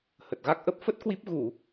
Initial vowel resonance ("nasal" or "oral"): oral